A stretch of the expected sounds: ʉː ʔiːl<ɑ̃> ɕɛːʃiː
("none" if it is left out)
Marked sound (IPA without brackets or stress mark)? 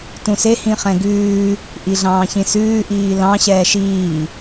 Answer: ɑ̃